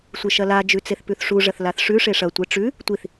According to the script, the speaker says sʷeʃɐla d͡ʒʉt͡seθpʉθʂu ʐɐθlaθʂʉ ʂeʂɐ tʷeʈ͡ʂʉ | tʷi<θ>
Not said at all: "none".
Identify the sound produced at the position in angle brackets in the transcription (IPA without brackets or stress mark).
θ